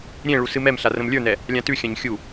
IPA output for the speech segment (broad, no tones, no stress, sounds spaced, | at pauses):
ɾʲ ẽ ɭ u s ɨ m ɛ m ɬ a r ə̃ m lʲ ə˞ n ɛ | lʲ ã t ʉ xʲ ã ɲ xʲ u